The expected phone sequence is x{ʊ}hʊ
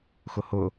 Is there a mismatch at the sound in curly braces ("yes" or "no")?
no